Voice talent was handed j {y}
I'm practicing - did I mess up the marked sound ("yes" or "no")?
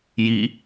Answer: yes